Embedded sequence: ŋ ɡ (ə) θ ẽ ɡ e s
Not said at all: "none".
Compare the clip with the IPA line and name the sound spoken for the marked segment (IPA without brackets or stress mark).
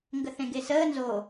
ə